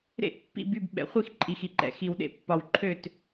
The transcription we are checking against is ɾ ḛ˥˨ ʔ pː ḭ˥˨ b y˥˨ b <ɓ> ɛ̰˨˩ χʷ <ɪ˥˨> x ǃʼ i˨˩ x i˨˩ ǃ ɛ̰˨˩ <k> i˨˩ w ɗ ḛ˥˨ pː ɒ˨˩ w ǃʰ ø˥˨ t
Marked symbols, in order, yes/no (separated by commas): yes, no, no